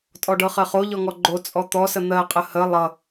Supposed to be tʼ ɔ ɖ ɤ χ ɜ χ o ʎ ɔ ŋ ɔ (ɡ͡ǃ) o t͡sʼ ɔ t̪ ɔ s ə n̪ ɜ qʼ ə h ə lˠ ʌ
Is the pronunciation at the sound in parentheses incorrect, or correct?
correct